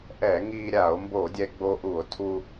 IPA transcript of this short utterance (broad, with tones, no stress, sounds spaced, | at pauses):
ʔ ɛ˧˩˧ ŋ iː˧ ɾʲ a˧˩˧ o̯ m b o˧˩˧ dʲ ɛ˧ ɡ͡b o˧ ʔ u˧˩˧ o̯ tʰ u˧